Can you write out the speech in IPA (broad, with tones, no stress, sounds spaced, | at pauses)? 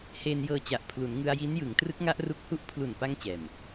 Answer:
h eː˧ n j ɤː˧ t͡ɕ a˨˩ ʔ pʰ l u˩˦ n ŋ ɯ˧ a̯ j i˦˥ n j ɯ˩˦ ŋ t r ɯ˦˥ k̚ ŋ a˦˥ ʔ r u˦˥ k̚ h u˥˩ ʔ pʰ l u˨˩ n p a˧ ŋ t͡ɕ ɛː˨˩ m